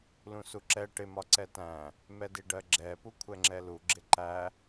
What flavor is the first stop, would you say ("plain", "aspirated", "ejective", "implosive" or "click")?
click